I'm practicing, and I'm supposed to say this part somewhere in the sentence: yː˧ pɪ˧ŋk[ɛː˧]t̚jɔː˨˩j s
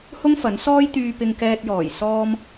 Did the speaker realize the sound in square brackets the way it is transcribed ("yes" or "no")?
yes